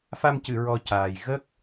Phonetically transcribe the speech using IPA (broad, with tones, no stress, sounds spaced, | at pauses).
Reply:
f a˧ m c ɨ˨˩˨ ɹ ɔ˧ c aː˨˩ j ɣ ə˦˥ k̚